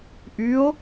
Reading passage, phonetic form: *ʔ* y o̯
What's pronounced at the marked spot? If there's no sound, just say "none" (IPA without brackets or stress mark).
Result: ʔ